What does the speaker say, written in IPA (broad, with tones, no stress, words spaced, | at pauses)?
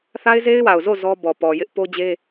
θa˦ɪ̯ze˦ɪ̯wa˨ʊ̯zo˦˨ zɔ˦bɔ˨ pɔ˨ jɪ˦ʔ po˦d͡ʑe˦